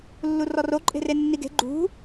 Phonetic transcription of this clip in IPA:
lːurɔro ǃʼe̤renːiɡe̤ ɡ͡ǃṳ

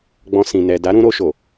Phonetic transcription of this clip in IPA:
ɡ͡bɔ̃˧sĩ˨ nɛ˨da˨˦ɾũ˧ ɾo˧ʃo˨

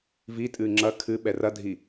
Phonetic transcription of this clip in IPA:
vitʼɨ ŋ͡ǁɐ kʰɨɓɛ rɐdʱi

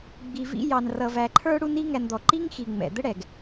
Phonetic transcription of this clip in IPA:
ɡ͡bi˨vḭ˧jɑ˨n rʌ˨væ˨ǃʰə˞˧ ɽu˦ni˦ŋæ˧nd̪ɔ˨ ǃi˦ŋxi˨ ŋ͡mɛ̰˨d̪ə˦ɽɛ˨ɡ

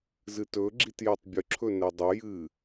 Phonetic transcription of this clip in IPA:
zɨtɵ ɡ͡ǁitjetˤbʲɵ ǁʰɵnedˤə jɨ

